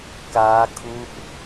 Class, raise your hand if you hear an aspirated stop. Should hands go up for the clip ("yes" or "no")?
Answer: yes